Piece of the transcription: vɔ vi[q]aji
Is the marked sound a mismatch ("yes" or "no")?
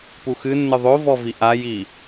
yes